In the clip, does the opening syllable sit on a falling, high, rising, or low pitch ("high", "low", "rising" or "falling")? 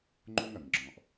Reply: high